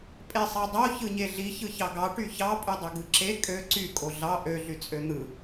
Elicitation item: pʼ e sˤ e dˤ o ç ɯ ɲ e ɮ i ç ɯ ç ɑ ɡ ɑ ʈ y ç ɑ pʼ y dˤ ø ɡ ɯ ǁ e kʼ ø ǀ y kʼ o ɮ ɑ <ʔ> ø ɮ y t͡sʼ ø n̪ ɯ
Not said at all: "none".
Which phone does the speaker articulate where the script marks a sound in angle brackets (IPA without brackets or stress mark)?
ʔ